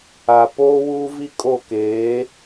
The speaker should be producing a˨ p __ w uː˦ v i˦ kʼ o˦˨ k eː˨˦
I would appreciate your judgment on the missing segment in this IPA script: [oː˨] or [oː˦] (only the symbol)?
oː˦